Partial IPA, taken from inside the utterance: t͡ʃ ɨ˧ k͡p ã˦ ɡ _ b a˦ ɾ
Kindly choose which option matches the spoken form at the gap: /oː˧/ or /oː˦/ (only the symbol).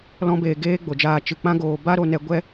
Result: oː˧